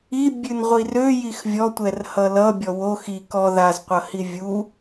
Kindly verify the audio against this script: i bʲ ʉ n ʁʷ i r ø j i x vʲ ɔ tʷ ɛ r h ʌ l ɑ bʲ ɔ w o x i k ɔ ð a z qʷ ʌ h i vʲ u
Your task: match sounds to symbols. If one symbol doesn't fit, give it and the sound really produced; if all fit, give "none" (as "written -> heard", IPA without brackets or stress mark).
ɑ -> ʌ